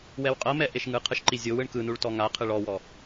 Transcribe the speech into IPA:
w ɛ w qʼ ɤ m ɛ ʔ e ʃ ŋ ɯ qʰ ɯ ʃ ǃ i zʲ o w ɯ ɳ k ɯ n u ɭ t ɔ ŋ a qʰ ɯ ɭ ɔ w ɔ

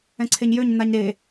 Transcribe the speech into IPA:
ɛ̃ ǀʰ e ɲ j ø ɲ n̪ a ɲ ɾ e

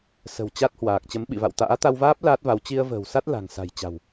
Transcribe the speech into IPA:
s ə̤˨˩ w t͡ɕ a˦˥ t̚ h w aː˨˩ k̚ t͡ɕ ə˨˦ m ɓ ḭ˧˨ v a̰˧˨ w t̪ a̰ː˧˥ t̪ a˧ w v aː˦˥ p̚ l aː˦˥ t̚ v a˨˦ w t͡ɕ i˧ ə̯ v ə̤ː˨˩ w s a˦˥ t̚ l a̤˨˩ ŋ s a̤˨˩ j t͡ɕ a̤˨˩ w

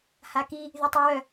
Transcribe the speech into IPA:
h a k i | ð y tˤ i w œ

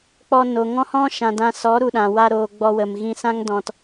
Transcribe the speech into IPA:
k͡p ɔ˧ n o˨ ŋ ɔ̃˦ h ɔ̃˦ ʃ ã˨ d ã˧ s ɔ˨˦ ɾ u˨ ɗ ã˨ w a˧ ɾ oː˨ ɡ͡b ɔ˧ w ə˨ m ɣ ĩ˧ s ã˦ ŋ d ɔ̃˦ t

